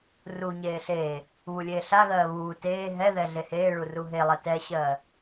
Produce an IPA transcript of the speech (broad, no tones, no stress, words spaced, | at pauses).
ru ɲeːɬeː | βulʲeːɬa ɣɜːβuː teː ɦɛðɛ ɮeheːɭuru ɦelˠɛ tɛɕɜː